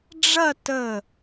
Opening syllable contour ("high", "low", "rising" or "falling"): falling